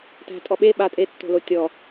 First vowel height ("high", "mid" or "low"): low